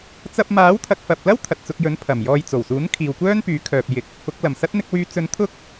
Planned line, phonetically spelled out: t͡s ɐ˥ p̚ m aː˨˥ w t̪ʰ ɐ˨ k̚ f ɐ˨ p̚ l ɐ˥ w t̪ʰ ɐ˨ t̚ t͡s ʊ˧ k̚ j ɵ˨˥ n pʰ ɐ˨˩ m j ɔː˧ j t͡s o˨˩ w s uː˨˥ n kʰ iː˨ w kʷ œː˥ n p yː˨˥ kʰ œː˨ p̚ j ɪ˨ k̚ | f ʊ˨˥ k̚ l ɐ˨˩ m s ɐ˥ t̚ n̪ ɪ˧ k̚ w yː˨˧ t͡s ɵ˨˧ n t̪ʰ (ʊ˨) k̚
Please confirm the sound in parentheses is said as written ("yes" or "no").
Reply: no